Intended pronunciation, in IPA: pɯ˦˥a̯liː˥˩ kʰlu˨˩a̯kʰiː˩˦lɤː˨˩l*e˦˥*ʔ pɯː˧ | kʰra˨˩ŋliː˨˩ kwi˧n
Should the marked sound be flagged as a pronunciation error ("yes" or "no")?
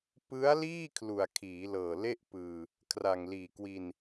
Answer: yes